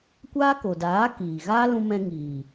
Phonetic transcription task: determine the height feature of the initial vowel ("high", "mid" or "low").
low